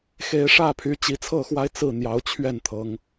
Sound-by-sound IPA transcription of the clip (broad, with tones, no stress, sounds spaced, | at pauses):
x e˨˦ ɪ̯ ʂ ä˥˨ pʰ y˨˦ t͡ɕ i˨˦ t͡sʰ ɤ˥˨ x w a˦ ɪ̯ t͡s ɹ̩˥˨ n̪ j ɑ˨˦ ʊ̯ t͡ɕʰ ɥ ɛ˥˨ n t̪ʰ ɤ˨˦ ŋ